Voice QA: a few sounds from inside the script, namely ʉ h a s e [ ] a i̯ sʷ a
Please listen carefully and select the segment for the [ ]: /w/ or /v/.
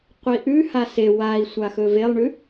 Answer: w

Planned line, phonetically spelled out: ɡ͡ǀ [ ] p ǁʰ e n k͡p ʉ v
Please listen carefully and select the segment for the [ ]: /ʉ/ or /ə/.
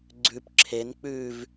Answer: ʉ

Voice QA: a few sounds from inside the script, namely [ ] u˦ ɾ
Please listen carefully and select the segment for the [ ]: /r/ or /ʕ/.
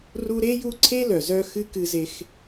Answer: r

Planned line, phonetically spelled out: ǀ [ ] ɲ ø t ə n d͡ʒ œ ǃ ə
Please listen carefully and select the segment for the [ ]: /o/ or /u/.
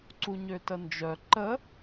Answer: u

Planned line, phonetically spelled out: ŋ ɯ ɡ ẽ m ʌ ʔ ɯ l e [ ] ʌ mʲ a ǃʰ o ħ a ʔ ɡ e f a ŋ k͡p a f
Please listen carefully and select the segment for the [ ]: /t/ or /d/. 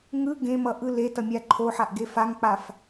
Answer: t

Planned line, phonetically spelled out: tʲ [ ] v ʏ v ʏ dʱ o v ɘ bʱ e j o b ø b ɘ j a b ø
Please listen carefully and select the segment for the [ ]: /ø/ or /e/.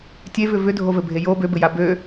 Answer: e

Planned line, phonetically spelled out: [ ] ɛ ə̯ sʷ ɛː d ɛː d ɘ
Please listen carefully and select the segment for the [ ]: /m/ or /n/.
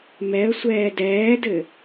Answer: m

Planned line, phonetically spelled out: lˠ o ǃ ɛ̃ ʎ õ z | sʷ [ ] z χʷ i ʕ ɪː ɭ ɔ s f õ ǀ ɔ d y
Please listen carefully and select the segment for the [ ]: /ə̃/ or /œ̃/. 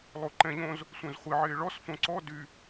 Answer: œ̃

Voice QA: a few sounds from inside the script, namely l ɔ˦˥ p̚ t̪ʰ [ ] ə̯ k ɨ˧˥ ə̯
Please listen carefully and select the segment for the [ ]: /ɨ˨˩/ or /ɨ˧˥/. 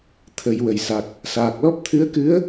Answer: ɨ˧˥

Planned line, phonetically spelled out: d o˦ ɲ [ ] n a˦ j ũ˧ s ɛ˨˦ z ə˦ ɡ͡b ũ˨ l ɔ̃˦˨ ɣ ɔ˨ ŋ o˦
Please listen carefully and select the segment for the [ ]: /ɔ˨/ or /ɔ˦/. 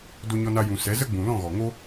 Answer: ɔ˦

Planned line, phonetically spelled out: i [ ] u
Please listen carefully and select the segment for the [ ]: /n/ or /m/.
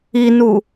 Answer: n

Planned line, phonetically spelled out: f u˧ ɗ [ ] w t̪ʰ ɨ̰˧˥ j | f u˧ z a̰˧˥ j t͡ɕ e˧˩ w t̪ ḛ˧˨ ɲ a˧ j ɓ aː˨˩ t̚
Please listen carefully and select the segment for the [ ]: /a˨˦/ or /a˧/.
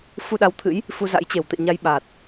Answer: a˨˦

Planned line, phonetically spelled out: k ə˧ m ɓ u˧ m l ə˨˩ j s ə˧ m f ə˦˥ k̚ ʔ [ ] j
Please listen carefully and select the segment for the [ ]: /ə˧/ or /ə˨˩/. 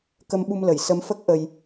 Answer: ə˧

